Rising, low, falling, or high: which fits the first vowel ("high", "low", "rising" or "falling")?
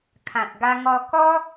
low